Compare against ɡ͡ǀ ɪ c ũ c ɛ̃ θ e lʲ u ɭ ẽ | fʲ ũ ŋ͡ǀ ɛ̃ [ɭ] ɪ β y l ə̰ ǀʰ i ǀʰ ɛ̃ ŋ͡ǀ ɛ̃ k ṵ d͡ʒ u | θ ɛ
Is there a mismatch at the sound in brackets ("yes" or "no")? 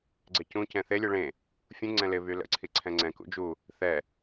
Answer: yes